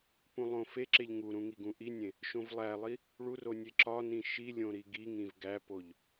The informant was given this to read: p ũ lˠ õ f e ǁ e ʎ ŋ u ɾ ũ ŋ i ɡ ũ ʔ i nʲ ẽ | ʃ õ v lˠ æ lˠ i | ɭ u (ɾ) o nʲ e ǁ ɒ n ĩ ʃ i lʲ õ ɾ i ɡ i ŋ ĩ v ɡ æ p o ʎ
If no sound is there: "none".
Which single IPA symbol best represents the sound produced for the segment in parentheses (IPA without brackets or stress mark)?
r